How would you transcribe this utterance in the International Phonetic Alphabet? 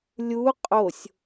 lʲu qʼosʲ

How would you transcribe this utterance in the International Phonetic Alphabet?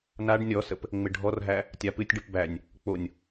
naɖ nʲɔsəp | ŋ͡mɪɖʱɔrɦæ | tʲapɨtʲɖɨp bænʲ | k͡ponʲ

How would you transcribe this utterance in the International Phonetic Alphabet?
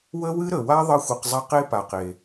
wə˦wɨ˦ ɾə˨wa˦ ðˤə˦xʷɨ˧qzˤa˦q e˦pa˨qe˨

